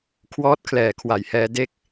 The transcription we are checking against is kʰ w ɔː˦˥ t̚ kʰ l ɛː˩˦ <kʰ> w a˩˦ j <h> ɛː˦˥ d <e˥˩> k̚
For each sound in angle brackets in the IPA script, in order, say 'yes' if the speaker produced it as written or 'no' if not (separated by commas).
yes, yes, yes